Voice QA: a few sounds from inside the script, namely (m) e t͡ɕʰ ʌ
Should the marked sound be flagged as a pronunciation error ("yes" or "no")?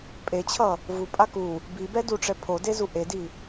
yes